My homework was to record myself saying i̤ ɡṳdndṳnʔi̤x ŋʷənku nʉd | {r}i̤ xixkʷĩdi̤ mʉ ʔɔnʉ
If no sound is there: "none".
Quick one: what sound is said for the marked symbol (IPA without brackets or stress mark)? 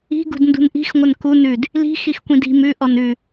l